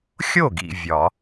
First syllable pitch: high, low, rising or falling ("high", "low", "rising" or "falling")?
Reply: falling